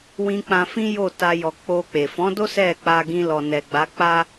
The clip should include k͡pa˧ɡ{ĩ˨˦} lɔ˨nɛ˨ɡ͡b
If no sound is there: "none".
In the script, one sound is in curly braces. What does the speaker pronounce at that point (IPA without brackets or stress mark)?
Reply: ĩ˧